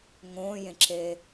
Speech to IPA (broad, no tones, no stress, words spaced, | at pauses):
ŋõːjẽǁeː